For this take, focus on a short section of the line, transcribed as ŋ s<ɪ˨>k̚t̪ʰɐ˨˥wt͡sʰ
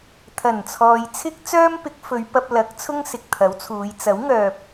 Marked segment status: correct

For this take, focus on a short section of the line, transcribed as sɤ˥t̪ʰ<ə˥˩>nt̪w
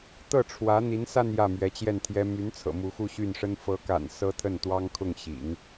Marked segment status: correct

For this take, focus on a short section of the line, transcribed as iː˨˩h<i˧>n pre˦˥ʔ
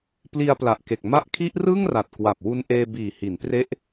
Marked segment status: incorrect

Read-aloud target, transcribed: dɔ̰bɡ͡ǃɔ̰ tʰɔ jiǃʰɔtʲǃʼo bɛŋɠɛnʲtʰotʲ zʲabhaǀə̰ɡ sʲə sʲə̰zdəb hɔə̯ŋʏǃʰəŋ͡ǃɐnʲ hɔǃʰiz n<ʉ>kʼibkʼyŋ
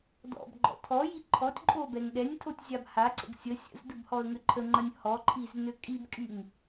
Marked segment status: incorrect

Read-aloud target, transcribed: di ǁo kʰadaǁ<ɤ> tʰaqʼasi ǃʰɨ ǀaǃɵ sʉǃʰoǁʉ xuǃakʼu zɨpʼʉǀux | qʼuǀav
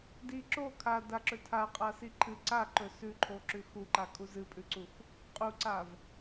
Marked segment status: incorrect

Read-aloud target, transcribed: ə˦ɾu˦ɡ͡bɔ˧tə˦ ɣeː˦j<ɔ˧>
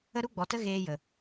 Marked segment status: incorrect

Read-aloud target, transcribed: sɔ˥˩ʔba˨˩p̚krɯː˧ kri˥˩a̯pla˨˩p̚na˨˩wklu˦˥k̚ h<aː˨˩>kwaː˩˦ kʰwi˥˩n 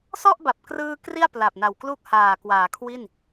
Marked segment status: correct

